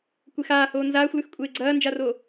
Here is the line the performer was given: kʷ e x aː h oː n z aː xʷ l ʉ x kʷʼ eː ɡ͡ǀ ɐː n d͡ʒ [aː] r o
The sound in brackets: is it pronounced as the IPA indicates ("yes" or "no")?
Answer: no